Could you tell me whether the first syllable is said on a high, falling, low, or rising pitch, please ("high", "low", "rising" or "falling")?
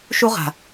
high